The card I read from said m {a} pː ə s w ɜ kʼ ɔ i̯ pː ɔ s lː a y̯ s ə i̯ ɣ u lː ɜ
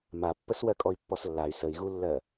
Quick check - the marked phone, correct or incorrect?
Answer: correct